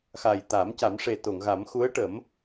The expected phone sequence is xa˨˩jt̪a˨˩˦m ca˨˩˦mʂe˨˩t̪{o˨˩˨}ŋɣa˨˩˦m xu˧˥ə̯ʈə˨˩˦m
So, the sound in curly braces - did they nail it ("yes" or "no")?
yes